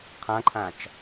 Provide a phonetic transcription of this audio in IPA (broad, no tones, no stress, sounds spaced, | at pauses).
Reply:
qʰ ã ǃʰ ã t͡ʃ